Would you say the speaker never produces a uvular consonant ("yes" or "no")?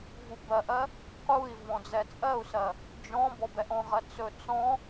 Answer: no